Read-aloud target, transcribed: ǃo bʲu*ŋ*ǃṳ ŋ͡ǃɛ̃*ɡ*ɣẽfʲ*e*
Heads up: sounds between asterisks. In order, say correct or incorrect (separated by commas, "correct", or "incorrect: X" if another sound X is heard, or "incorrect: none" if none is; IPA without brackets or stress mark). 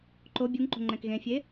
correct, incorrect: k, correct